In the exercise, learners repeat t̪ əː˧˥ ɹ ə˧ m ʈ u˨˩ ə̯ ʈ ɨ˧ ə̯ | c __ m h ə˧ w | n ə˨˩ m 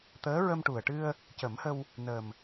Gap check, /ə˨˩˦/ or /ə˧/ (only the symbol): ə˨˩˦